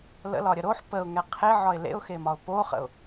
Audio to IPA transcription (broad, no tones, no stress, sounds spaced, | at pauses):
l ə̰ l ɒ ɾʲ ə ɾ o ħ p ə ʊ̯ ŋ ɛ qʰ e ʕ ɒ ɪ̯ l ḛ ʊ̯ x e m ɒ ʊ̯ p o χ ə̰ ʊ̯